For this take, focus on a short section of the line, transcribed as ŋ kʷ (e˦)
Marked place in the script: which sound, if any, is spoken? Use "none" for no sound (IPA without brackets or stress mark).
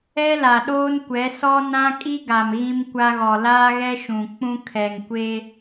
e˦